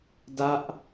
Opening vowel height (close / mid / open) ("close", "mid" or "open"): open